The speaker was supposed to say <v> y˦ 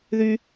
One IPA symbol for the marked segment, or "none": ð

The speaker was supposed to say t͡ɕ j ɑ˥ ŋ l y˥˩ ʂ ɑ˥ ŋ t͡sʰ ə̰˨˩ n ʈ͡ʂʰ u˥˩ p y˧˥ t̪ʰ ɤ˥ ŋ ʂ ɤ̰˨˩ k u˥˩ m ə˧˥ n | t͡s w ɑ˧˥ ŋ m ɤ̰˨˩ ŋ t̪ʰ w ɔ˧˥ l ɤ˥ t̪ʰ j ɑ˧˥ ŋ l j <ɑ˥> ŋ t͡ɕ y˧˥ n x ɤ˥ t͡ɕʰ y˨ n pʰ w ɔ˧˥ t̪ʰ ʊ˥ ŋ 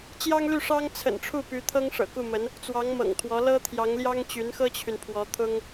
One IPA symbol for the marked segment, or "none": ɑ˥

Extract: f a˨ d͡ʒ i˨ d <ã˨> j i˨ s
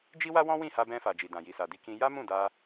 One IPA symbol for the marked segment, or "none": ã˨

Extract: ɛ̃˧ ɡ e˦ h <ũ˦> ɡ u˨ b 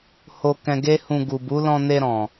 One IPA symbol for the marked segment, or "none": ũ˧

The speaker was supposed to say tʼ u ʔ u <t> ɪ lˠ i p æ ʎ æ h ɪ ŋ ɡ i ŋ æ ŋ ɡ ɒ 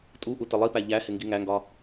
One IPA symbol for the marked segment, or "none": t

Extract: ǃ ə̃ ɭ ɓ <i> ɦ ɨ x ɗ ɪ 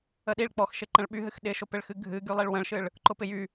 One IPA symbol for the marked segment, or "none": y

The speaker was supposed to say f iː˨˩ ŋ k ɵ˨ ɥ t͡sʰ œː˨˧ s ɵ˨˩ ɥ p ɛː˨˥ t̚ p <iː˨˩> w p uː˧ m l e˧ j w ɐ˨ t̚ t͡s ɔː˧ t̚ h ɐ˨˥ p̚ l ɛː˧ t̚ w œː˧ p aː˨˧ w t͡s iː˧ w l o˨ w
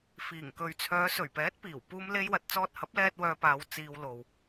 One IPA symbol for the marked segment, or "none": iː˨˩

